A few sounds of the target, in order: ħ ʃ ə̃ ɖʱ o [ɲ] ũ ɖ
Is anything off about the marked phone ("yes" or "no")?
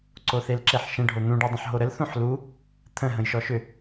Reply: yes